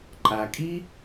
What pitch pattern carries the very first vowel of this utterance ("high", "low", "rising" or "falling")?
low